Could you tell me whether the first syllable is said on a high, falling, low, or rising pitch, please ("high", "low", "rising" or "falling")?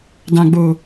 low